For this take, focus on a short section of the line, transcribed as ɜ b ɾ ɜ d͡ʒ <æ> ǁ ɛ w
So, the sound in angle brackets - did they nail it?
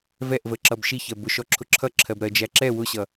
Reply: yes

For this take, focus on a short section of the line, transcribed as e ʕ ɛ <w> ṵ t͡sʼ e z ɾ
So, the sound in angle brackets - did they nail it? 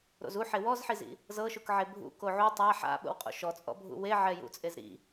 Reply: no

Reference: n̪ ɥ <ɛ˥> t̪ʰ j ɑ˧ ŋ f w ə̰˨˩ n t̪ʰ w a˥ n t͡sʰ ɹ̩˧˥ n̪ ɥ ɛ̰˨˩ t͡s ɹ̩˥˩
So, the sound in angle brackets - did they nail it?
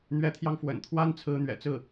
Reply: no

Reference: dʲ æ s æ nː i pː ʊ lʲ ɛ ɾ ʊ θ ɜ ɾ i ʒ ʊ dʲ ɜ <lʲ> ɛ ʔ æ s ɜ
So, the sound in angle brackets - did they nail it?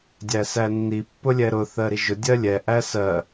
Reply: yes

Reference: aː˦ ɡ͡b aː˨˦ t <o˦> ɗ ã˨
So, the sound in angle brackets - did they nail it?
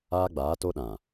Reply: yes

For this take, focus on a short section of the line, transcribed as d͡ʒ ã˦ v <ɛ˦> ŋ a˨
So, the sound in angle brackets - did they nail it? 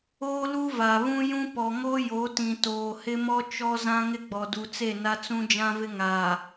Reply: no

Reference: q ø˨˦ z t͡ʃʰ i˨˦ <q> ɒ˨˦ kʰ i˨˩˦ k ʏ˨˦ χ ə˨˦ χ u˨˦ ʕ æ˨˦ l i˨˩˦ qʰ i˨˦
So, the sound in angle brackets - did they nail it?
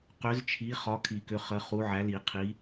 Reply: no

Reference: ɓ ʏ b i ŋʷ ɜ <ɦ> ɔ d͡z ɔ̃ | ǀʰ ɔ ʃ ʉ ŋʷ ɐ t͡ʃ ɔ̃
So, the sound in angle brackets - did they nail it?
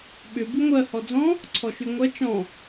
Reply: no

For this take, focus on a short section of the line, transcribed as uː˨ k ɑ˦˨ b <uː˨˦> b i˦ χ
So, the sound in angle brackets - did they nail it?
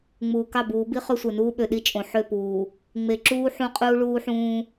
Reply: yes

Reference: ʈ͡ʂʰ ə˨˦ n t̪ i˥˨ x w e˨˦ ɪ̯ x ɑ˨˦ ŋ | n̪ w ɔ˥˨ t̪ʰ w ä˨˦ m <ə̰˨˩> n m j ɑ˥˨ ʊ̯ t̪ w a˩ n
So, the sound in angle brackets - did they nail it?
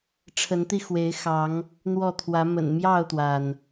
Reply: yes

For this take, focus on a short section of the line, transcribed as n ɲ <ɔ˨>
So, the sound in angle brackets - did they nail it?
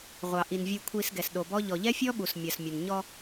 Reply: no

